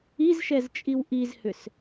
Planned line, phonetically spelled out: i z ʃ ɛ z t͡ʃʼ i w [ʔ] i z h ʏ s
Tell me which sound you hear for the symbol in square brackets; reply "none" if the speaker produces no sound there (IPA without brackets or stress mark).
ʔ